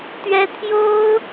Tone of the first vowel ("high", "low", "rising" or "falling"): high